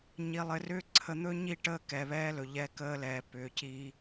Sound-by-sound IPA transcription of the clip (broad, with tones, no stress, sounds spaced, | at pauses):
ɲ i˨ lˠ ɘ˨ r ʏː˦ ǀʰ ə˨˦ n̪ ɵ˦ ɲ i˦˨ ʈ əː˦ k ɛ˨ β ɛː˦ l ɵ˨ ʎ ɛ˦ k əː˦ l ɛː˨ p ʏː˨ c iː˦